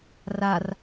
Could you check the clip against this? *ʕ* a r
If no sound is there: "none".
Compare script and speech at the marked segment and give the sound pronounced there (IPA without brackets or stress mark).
r